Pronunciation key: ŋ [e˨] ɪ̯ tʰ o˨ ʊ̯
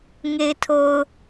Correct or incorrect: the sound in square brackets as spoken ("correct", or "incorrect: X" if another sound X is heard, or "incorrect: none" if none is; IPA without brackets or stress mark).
correct